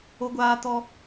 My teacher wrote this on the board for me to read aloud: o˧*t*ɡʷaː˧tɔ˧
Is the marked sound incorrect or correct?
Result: incorrect